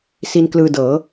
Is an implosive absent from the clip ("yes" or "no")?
yes